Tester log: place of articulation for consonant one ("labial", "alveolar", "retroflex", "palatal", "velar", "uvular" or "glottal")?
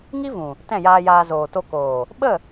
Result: velar